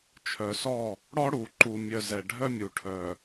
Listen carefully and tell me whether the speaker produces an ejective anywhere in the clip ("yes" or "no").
no